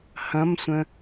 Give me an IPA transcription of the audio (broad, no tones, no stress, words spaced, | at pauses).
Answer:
hɐ̃msʷə̃